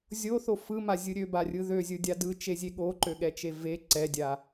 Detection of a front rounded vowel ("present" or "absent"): present